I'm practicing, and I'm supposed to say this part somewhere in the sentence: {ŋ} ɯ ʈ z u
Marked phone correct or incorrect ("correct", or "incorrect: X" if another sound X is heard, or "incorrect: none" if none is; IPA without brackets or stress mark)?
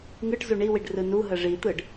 correct